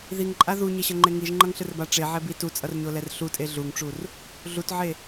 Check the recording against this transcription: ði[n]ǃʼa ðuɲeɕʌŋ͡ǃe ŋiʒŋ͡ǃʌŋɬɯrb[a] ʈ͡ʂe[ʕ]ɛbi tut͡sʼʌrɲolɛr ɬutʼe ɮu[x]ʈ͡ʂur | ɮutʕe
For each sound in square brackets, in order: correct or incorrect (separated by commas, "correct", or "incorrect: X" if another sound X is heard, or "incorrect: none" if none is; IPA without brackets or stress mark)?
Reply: incorrect: ŋ, correct, correct, incorrect: ŋ